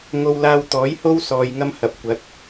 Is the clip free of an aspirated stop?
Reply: yes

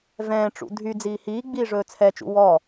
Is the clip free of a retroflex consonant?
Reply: no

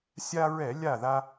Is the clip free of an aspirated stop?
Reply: yes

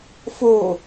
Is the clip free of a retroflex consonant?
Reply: yes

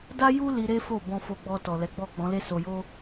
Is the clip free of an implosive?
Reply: yes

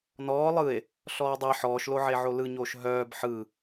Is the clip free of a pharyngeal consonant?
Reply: no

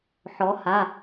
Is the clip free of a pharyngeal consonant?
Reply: no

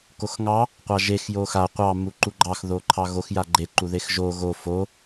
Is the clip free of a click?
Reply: no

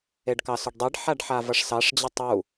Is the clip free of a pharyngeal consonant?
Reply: no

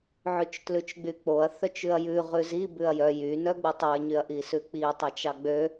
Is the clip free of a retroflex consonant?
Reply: yes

